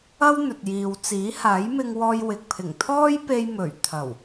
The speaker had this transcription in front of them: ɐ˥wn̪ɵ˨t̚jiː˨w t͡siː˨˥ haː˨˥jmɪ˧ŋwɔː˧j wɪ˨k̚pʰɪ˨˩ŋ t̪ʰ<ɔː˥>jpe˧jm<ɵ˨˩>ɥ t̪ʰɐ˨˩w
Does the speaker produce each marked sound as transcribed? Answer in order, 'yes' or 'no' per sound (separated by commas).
yes, yes